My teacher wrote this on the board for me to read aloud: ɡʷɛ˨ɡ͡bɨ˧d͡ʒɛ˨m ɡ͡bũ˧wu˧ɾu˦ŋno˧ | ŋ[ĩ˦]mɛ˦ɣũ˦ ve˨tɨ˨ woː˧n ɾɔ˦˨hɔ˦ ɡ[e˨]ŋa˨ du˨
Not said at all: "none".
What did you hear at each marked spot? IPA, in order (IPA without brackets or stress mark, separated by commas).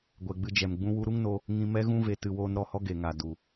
ĩ˧, e˨